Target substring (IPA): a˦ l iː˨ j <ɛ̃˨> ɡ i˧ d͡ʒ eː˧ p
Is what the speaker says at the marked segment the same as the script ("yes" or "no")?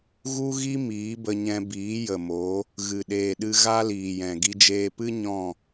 yes